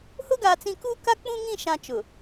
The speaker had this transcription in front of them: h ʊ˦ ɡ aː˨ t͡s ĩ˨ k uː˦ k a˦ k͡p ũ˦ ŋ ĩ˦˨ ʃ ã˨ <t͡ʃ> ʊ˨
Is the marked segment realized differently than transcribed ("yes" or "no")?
no